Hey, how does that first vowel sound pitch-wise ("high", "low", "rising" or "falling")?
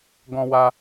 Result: high